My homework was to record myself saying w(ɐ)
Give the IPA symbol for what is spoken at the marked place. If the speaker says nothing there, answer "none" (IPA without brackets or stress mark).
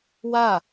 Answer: a